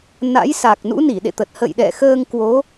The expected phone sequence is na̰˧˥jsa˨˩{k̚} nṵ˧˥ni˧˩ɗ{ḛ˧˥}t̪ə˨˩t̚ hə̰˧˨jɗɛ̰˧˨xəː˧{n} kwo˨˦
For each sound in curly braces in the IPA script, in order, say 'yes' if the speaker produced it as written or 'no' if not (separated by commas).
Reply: yes, no, no